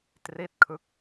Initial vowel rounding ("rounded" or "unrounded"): unrounded